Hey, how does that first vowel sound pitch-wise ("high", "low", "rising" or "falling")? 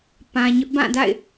low